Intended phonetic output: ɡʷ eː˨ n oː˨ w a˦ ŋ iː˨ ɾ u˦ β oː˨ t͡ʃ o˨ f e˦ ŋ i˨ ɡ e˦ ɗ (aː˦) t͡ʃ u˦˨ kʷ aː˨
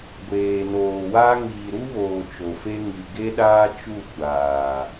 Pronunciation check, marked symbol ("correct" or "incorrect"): correct